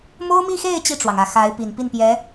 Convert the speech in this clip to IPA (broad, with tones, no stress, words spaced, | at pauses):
mo˥ʊ̯mi˥˧xe˥˧ɪ̯ t͡ɕi˥˩ʈ͡ʂwɑ˩ŋ ä˨˩xa˧˥ɪ̯pi˨˩n pi˥˩npjɛ˧˥